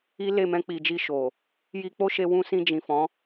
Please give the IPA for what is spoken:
i˦ l e˦˨ m ɛ̃˧ k͡p i˨ d͡ʒ i˧ ʃ o˨ | j i˧ k͡p o˦ ʃ e˧ w ũ˧ s ĩ˧ d͡ʒ ĩ˨ f ɔ̃˨˦

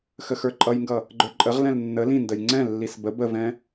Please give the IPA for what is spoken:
x ə x ə˞ ǃʼ ʌ j ŋ ɡ ʌ | ɡ͡ǃ ə˞ ǃʼ ə ʁ l ɛ̃ l nː ə l ĩ n d ə j ŋ͡ǀ ɛ̃ lː i s b ə b ə v ɛ̃

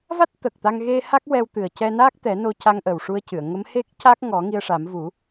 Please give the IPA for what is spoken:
v a˦˥ t̚ t̪ ə˨˩ k̚ t̪ a˧ ŋ ɣ e˧ h a˦˥ k̚ w ɛ˧ w t̪ ɨ˨˩ ə̯ c ɛ˧ n aː˦˥ k̚ t̪ ɛ˨˩˦ n o˧ c a˧ ŋ ʔ ə˨˩ w ʂ u˧ ə̯ c ɨ˨˩˨ ə̯ ŋ ə˧˥ m h e˦˥ k̚ c a˦˥ k̚ ŋ ɔ˨˩˦ ŋ i˧ ə̯ ʂ a˨˩˦ m v u˨˩˦

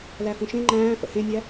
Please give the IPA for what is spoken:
l æ f ũ ʃ ẽ ŋ͡ǃ æ̃ː f ə̰ h ẽ nʲ æ

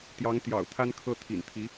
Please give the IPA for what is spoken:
t̪ j ɑ˧˥ ŋ t̪ j ɑ̰˨˩ ʊ̯ t̪ʰ a˥ n kʰ ɤ˥˩ t̪ʰ ḭ˨˩ n t̪ʰ i˧˥

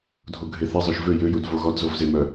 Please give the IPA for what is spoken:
dʱ o ɡʱ e θ e zˤ ø ʃ v ø j ø j u d v o ɣ ɔ d z o v z e m œ

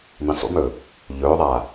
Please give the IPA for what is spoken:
m ĩ sˤ ṵ m ɵː | ʎ ɵː ðˤ aː

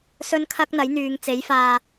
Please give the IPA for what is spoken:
s ɵ˥ n kʰ ɐ˥ k̚ n̪ ɐ˨˥ j n̪ yː˨˧ ŋ t͡s e˨˥ j f aː˧

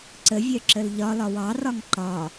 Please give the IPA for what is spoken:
ǀ ə vʲ œ ǁ ə l ʎ ɒ l ɒ w ɑ r ɒ ŋ ǃ ɒ

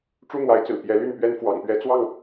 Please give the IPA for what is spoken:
ʈ͡ʂ u˦ n̪ w a˨˦ ɪ̯ t͡s ɹ̩˨˩ p j ɛ˨˦ l y˥˨ n p ɥ ɛ˦ n f w ɑ̰˨˩ ŋ p ɥ ɛ˦ t͡s w ɑ˥˨ ŋ

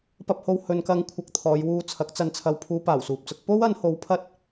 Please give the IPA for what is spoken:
p ɐ˨ p̚ h o˨ w h ɵ˨ n k ɐ˧ ŋ kʷʰ ɐ˧ k̚ t̪ʰ ɔː˨˧ j w uː˧ t͡sʰ ɐ˨˥ k̚ t͡s ɐ˧ n t͡sʰ ɐ˧ w pʰ uː˧ p aː˨˩ w s uː˨ p̚ t͡s ʊ˨˥ k̚ p o˥ w ɐ˨˧ n h o˨˧ w pʰ ɐ˥ t̚

